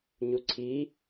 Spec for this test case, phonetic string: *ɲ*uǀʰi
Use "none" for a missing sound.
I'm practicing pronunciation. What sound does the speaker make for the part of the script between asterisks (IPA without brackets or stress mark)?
ɲ